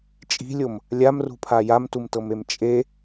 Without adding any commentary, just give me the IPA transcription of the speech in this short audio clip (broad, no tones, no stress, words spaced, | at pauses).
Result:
t͡ʃʼi̤lʲom | lʲamrṳpʰa jamtumtɤmem t͡ʃʼe